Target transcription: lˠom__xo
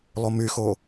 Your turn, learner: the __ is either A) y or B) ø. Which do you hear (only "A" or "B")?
A